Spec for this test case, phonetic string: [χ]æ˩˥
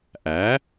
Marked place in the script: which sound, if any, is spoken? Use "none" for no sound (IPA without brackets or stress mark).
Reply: ʔ